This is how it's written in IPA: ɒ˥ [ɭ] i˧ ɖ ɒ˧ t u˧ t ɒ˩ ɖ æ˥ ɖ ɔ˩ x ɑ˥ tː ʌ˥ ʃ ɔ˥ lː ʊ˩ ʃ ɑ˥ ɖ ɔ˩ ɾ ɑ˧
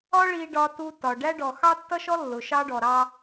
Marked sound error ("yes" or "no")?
no